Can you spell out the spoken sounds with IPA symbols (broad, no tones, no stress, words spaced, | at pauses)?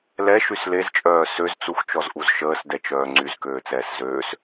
lɛʃys lezt͡ʃʼœː søzt͡suxt͡ʃɔzʔuz ʃəːsdɛt͡ʃœː ŋ͡ǀyzkøːt͡sɛːs zøːs